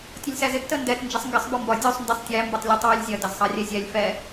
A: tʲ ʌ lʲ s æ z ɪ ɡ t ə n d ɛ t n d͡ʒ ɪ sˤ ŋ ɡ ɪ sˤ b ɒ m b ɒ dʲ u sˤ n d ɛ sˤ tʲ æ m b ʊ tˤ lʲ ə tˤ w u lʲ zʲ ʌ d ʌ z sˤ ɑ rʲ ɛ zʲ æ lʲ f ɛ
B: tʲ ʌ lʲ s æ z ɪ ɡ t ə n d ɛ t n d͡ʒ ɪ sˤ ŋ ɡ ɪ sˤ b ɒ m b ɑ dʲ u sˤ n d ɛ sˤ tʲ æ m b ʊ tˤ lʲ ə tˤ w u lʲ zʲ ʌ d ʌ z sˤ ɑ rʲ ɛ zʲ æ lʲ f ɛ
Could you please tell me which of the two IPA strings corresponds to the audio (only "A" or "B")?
A